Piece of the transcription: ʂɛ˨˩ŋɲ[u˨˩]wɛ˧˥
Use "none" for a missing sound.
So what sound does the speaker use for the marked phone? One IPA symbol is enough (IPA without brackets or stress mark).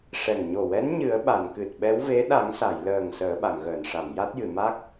o˨˩